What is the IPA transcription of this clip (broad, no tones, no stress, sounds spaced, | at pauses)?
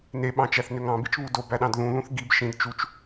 n e ɓ ɑ̃ t͡ʃ æ θ n ø ŋ ɑ̃ b i t͡ʃ β u d o b æ ɗ ɑ̃ d ð ũ ð ũ θ ɡ i b ʃ ĩ d t͡ʃ u t͡ʃ